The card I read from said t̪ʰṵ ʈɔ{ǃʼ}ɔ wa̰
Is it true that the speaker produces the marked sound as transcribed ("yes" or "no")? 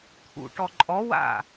yes